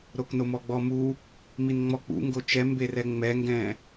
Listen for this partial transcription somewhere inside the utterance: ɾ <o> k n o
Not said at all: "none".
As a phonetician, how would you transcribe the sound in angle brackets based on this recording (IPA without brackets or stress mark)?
o